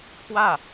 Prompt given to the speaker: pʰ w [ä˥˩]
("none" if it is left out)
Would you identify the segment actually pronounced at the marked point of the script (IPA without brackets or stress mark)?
ä˥˩